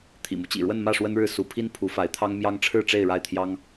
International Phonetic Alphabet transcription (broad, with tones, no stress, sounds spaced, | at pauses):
t̪ʰ ḭ˨˩ m u˦ t͡ɕ ḭ˨˩ ɻ w ə˥˧ n m ä˥˩ ʂ w ə˥ n ɻ ɻ̩˥˩ s u˧˥ pʰ i˥ n pʰ u˧˥ f a˧˥ ɪ̯ t̪ʰ ɑ˥ ŋ m j ɑ˥ ŋ ʈ͡ʂʰ ɻ̩˥˧ ʈ͡ʂ e˥˧ ɪ̯ ɻ a˥˩ ɪ̯ t̪ʰ j ɑ˥ ŋ